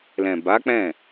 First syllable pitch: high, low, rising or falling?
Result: low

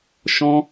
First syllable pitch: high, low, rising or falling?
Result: high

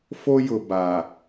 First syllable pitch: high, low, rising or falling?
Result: high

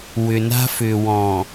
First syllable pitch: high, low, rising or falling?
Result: low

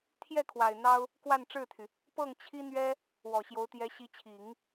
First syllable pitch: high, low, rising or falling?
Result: falling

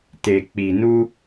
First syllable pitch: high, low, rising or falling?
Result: low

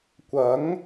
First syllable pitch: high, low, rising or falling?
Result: rising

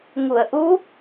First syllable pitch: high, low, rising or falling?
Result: low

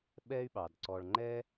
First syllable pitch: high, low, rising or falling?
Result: high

